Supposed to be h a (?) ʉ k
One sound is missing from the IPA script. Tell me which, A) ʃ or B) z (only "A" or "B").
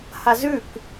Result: B